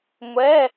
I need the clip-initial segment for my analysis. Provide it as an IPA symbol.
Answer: ŋʷ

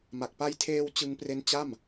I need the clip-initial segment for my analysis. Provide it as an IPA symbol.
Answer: m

